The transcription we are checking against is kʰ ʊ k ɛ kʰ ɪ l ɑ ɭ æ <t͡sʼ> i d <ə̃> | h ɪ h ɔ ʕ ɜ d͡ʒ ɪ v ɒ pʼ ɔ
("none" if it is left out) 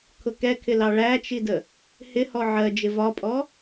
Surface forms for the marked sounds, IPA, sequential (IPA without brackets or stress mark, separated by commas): t͡ʃ, ə